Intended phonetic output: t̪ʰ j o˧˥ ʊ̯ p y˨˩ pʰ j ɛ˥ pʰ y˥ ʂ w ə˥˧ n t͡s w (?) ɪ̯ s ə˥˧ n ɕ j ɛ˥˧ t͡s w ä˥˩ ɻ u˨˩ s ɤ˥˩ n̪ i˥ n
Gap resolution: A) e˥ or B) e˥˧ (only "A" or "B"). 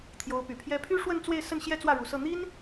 B